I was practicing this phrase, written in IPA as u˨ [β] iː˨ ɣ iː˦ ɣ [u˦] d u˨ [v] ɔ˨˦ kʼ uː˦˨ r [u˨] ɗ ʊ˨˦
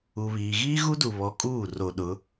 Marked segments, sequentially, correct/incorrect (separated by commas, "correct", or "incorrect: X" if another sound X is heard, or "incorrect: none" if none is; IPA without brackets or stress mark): correct, correct, incorrect: β, incorrect: o˨